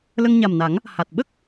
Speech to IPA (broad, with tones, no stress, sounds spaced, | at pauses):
l ə˧ ŋ ɲ a˨˩ m n a˨˩˦ ŋ | h a˨˩ t̚ ɓ ə˦˥ k̚